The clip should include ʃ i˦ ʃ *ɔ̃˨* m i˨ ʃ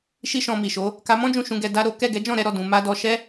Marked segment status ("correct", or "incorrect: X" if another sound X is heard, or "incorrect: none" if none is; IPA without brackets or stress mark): incorrect: ɔ̃˧